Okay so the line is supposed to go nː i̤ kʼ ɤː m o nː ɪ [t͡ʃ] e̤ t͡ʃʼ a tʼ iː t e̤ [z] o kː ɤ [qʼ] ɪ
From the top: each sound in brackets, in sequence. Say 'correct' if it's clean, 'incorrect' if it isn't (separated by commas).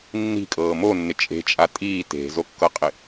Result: incorrect, correct, correct